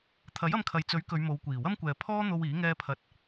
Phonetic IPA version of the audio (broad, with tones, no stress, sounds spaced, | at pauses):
t̪ʰ ɐ˨˥ j ɐ˧ m kʰ ɐ˨ j t͡s ɵ˨˥ ɥ k ɵ˨˧ ɥ m o˨˧ w kʷ iː˨˩ w ɐ˥ m kʷ ɛː˨ pʰ ɔː˥ n̪ o˧ w iː˨˥ ŋ ɛː˥ pʰ ɐ˧ t̚